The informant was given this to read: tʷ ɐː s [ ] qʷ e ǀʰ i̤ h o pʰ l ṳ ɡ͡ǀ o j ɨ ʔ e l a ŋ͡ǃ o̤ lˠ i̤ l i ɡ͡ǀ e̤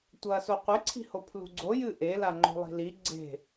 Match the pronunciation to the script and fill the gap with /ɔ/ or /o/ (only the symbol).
o